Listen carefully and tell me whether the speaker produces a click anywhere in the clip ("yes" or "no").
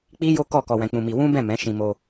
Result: no